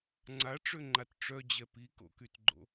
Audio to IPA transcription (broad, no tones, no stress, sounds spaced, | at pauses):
ŋ͡ǀ a ʈ͡ʂ ø ŋ͡ǃ a t ʈ͡ʂ œ d͡ʑ ɛ p i k o̰ k y t ɡ͡ǃ o̰